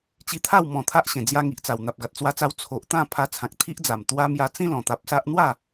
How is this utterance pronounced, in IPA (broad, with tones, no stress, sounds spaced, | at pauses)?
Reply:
t͡ɕ i˧ t̪ʰ a˥˧ w m ɔ̃˨˩ t̪ʰ a˦ ʔ ɕ ẽ˨˩ d͡z j a˧ ŋ i˨ ʔ t͡s a˨˩ w n̪ a˨ p̚ ɡ a˨ t̚ t͡s w a˧ t͡s a˧ w t͡sʰ o˨ ʔ t̪ ã˥˧ pʰ a˧ t͡sʰ ã˨ k̚ t̪ʰ i˦ ʔ d͡z a˨˩ m t̪ w a˧ m j a˧ t͡s ĩ˦ l ɔ̃˨˩ t̪ a˨ p̚ s a˦ ʔ n̪ w a˥˧